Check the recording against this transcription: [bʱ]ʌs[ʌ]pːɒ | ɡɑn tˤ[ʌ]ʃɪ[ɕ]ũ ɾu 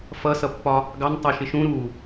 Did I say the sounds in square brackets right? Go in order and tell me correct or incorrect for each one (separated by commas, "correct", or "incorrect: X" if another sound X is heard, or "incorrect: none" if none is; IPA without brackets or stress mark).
incorrect: f, correct, incorrect: ɑ, incorrect: ʃ